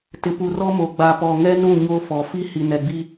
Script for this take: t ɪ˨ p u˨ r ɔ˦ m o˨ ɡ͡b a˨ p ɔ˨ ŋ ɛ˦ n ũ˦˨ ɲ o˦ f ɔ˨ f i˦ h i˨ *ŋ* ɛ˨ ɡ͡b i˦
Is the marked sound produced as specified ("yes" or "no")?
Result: no